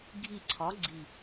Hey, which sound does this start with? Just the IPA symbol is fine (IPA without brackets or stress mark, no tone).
ɡʱ